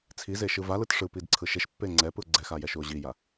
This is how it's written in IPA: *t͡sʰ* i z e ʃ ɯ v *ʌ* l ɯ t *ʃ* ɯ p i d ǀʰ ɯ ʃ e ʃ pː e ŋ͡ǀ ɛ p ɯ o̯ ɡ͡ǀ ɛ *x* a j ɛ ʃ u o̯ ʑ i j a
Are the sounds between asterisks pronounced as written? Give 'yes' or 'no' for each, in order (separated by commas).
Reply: yes, no, no, yes